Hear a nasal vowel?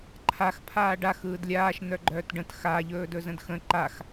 yes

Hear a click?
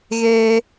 no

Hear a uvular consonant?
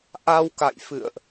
no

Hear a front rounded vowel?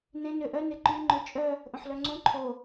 yes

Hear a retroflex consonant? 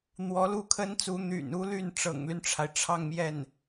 yes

